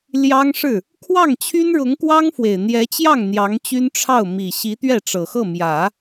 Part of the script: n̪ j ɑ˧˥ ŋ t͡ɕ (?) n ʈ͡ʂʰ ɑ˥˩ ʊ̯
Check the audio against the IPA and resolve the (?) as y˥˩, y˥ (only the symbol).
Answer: y˥